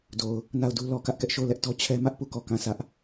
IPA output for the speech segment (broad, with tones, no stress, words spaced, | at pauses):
do˨ʊ̯ | na˦˨ʊ̯du˦ lɔ˨kä˦ʔ kɛ˦ʔʃo˦˨ʊ̯lɛ˦ʔtɔ˦ t͡ɕʰɛ˦mä˦ʔpu˦˨ kɔ˦˨kã˦˨ sä˦ʔ